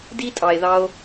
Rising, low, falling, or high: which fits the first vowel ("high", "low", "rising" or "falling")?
high